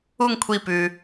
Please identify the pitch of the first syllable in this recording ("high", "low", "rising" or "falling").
falling